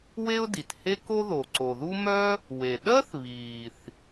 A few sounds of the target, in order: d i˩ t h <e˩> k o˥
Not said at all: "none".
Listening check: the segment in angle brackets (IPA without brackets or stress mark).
e˥